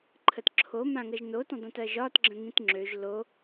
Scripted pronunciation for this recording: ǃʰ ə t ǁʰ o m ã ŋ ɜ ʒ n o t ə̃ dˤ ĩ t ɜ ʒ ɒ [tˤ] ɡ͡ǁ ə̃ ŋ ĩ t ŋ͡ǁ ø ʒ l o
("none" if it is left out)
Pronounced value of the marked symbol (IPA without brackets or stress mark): t